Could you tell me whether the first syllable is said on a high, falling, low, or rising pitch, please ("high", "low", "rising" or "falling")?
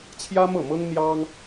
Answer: high